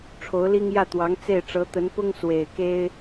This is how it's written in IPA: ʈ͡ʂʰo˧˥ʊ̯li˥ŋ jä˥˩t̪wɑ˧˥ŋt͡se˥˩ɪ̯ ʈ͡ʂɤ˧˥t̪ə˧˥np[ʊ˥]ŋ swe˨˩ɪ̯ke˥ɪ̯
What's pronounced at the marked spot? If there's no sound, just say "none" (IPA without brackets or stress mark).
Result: ʊ˥